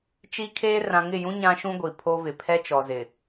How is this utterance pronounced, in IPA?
t͡ʃ i˦ kʰ eː˦ r ã˨ ŋ ɪ˦˨ j ũ˦ ɲ ã˦ ʃ ũ˦ ɡʷ i˨ pʰ o˦ v ɪ˨ pʰ ɛ˦ t͡ʃ ɔ˨ z ɪ˨

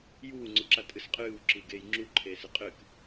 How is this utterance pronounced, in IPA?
j uː ŋ͡ǀ u ǁ a tʼ ɨ s qʼ ɨː w ǁ i ɡ eː j ŋ͡ǁ u ǃʰ eː s ɨ qʼ ɨ k

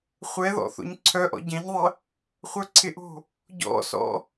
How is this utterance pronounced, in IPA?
χʷ ɛ ð ɔ̰ θ o̰ ɲ ǀʰ œ ʔ ɔ̰ ɟ ɛ̃ ɲ ðˤ ə | χʷ œ ǀʰ ɪ ʔ o̤ | ɟ ɔ̰ s ɔ̰

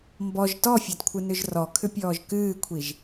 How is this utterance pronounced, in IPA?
m b ɔ ʒ t ɔ fʲ ɒ d kʷʰ ɨ n ʏ ʒ r ɔ kʰ ʏ pʲ ɔː ʒ k ɨː kʷʰ i ʒ

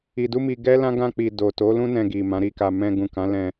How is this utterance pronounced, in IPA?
i˧ d u˦ m i˧ ɡ ɛ˦ l ã˦ ɡ ã˧ k͡p i˨ d o˨ t o˨˦ l ũ˦ n ɛ̃˧ ɡ i˨ m ã˨˦ ɾ i˦˨ k a˧ m ɛ̃˧ ɡ ũ˨ k ã˨˦ l ɛ̃˧

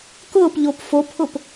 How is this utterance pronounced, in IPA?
k ʊː p ʎ o p f o pʰ ʊ p

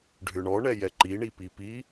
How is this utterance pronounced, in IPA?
ɖʱ ʏ ɳ ɔ ɳ ɛ j ɛ ǃ i ɳ i p i p i

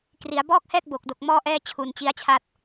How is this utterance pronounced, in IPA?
k r i˩˦ a̯ b ɔː˥˩ k̚ h ɛː˥˩ k̚ b o˨˩ k̚ d o˨˩ k̚ m ɔː˧ ʔ ɛː˧ t͡ɕʰ u˧ n t͡ɕ i˦˥ a̯ t͡ɕʰ a˥˩ t̚

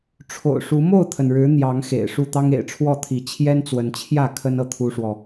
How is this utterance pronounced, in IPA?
ʈ͡ʂʰ o̰˨˩ ʊ̯ ʂ u˨˦ m o˥˨ ʊ̯ t̪ʰ ə˩ n ɻ ɻ̩˨˦ n̪ j ɑ˨˦ ŋ x ḛ˨˩ ɪ̯ ʂ u˥˨ t̪ ɑ˦ ŋ ḛ˨˩ ɪ̯ ʈ͡ʂʰ w ɔ˥˨ t̪ʰ i˨˦ t͡ɕʰ j ɛ˦ n t͡s w ə˨˦ n t͡ɕʰ j ä˥˨ kʰ ə˦ n ɤ˨ t̪ʰ u˦ ʂ w ɔ˨

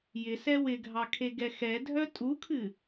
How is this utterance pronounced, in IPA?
j ɪ s ɛ w ɪ ɡʱ ɑ kʰ e ɡ ɛ x ɛ dʱ œ tʼ u kʰ ɨ

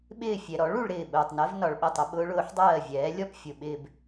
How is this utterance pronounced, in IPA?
ɓ ɪː˥˩ fʲ ɛ˨˩ ɾ ɔ˩˥ ɭ u˨˩ ɭ ɾ ɪː˥˩ ɓ ʊː˨˩ tˤ n ɜ˧˥ v n ɒ˨˩ ɭ ɓ ɛ˥˩ tˤ ə˧˥ ɓ ʊː˧˥ ɭ ʊː˩˥ ħ dˤ ɜː˥˩ vʲ ɛː˩˥ lʲ ɔ˥˧ p fʲ ʊ˨˩ ɓ ɪː˥˧ b

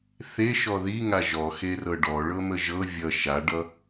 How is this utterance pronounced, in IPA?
θ e ʃ ɔ ð i ŋ a ʒ ɔ x e r ɤ ɖ ɔ ɭ ɤ m ə ʒ ɤ vʲ ʌ ʃ a ɖ ʌ

